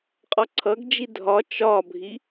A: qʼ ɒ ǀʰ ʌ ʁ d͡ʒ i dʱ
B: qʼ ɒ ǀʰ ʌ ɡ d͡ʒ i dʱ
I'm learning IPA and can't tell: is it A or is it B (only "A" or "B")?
B